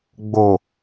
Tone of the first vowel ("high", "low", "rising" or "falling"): low